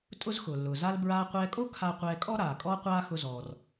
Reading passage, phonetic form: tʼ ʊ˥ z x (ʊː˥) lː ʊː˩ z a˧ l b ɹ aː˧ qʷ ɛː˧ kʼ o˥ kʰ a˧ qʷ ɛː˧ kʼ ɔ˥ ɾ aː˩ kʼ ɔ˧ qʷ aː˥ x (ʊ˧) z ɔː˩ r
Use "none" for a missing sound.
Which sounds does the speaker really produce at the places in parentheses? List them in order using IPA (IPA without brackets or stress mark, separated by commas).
ʊː˩, ʊ˧